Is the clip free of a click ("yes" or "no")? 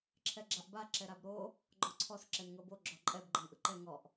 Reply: no